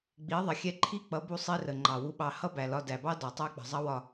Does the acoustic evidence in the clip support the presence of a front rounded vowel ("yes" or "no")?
no